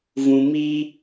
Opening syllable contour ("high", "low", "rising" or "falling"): low